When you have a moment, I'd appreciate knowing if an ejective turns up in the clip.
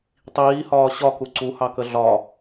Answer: no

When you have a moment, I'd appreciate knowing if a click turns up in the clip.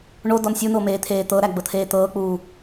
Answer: no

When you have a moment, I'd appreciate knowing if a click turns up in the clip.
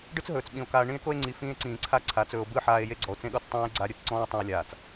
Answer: yes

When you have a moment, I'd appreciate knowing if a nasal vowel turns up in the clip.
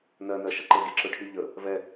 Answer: no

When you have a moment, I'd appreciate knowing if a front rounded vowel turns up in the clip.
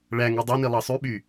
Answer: yes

